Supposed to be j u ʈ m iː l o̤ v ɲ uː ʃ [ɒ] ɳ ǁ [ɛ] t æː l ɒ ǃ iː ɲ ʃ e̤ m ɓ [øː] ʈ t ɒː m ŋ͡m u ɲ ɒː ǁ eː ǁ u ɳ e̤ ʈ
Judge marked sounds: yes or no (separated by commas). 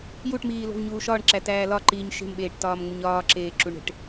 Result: no, no, no